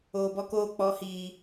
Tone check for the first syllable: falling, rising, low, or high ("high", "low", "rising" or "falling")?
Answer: low